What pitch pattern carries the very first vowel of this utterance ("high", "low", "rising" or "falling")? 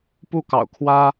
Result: falling